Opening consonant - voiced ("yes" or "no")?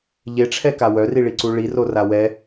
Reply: yes